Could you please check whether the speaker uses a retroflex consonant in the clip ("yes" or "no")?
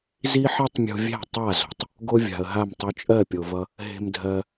no